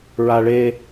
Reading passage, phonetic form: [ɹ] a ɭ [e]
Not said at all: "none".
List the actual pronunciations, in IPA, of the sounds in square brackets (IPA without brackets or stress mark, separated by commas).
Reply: ɹ, e